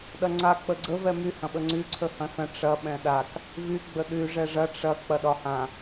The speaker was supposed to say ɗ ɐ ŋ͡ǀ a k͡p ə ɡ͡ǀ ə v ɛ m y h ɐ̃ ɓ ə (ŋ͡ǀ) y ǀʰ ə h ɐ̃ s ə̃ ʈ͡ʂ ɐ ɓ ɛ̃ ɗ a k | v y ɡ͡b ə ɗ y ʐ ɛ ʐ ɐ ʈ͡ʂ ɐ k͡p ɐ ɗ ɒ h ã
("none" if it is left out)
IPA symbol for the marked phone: ŋ͡ǀ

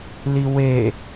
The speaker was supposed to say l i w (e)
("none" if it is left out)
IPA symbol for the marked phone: e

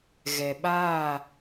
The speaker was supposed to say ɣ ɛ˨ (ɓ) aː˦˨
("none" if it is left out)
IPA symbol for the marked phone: ɓ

